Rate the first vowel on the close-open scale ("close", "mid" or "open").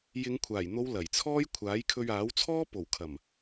close